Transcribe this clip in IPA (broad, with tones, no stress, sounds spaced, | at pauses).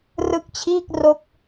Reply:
r ɯ˦˥ k̚ t͡ɕʰ iː˥˩ k̚ r o˦˥ k̚